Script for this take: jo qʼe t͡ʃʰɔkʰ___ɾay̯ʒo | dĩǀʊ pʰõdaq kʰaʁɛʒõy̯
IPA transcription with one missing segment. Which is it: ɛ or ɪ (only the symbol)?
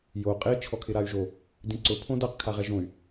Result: ɪ